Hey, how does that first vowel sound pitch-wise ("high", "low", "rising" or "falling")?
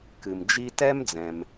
low